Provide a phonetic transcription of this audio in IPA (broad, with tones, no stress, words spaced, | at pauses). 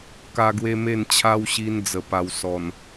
ka˦ɡwe˦me˥˧n t͡ɕʰa˦wɕi˧n d͡zə˨˩pa˨˩w sɔ˨˩n